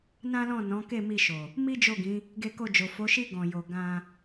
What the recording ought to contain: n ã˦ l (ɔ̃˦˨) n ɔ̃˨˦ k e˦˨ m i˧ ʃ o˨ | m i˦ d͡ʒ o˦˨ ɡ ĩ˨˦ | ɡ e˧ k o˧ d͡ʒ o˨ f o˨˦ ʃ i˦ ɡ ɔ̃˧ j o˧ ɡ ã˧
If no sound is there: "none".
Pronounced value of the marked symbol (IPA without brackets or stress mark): ɔ̃˦˨